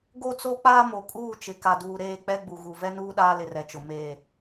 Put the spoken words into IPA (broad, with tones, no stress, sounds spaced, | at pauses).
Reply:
ɡ o˦ t͡s o˦ k͡p aː˦ m o˨ kʼ uː˦˨ t͡ʃ ɪ˨ k a˨ d uː˨ ɾ eː˦˨ k͡p ɛ˦ ɡ͡b u˨ ɣ u˨ v ɛ˦ n uː˦ ɗ aː˦ l ɪ˨ r ɛ˨ t͡ʃ ʊ˨ m eː˨